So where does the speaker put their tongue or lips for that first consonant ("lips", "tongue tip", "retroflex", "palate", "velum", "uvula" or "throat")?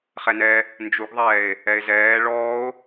uvula